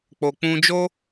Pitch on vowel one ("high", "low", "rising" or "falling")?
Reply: low